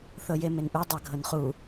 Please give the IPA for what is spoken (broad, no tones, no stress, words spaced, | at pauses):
θɤjemenʔu dˤaɡʱɤnχu